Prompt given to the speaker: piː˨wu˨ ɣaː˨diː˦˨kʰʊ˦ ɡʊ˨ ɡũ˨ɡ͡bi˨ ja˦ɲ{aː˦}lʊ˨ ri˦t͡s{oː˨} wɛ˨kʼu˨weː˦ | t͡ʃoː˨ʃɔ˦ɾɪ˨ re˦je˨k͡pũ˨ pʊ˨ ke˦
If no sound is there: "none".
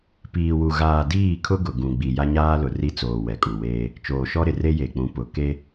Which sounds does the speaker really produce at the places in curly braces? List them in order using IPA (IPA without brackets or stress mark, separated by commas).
aː˦, oː˨